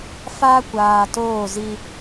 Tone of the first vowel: high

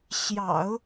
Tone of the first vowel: low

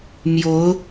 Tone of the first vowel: rising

